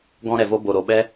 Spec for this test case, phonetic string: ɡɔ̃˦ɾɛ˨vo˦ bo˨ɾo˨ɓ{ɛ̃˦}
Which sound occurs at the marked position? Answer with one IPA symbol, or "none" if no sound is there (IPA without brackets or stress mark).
ɛ˦